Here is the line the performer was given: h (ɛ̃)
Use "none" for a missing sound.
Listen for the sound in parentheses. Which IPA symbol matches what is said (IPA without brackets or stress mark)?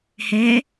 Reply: ɛ